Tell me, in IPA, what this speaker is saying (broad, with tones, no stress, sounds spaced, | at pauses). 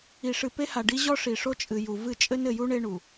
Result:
i˨ ʂ ɨ˨ p e˦ h a˨ ɖ i˦ ʑ ɔ˦ ʂ i˨ ʂ o˦ t͡ʃʼ ɨ˨ j u˨ v ɨ˦˨ t͡ʃʼ ɘ˦ n ɘ˨ j u˦ ɳ e˦ ɳ u˨